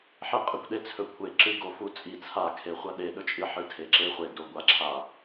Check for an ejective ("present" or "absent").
present